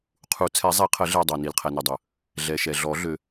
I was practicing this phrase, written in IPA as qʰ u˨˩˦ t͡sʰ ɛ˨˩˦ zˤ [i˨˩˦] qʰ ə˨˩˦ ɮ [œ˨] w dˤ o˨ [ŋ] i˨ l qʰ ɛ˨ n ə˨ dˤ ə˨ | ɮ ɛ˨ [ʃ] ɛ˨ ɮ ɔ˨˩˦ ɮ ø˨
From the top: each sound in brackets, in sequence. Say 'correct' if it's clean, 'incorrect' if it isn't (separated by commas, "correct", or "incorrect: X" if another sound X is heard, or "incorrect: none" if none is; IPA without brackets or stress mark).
correct, incorrect: ɛ˨, incorrect: n, correct